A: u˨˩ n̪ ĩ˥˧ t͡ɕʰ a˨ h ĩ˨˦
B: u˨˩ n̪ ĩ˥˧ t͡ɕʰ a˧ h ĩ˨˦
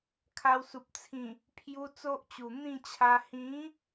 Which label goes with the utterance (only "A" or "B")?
B